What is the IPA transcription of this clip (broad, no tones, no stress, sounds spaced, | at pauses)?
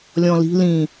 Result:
lʲ ɔ̃ l i̤ l ĩː